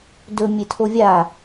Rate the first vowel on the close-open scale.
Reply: mid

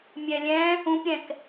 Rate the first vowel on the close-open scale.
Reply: mid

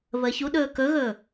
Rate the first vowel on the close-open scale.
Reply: mid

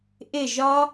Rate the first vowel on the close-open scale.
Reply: close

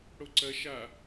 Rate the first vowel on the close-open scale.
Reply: mid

